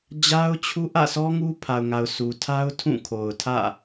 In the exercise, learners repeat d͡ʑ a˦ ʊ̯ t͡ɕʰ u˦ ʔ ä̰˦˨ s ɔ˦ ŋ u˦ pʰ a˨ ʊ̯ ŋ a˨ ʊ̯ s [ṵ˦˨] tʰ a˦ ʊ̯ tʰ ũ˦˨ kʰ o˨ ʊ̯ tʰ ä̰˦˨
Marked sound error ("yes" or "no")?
yes